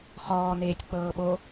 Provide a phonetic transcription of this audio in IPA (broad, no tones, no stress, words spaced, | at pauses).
χɔːneːtʲ k͡pɤːɓo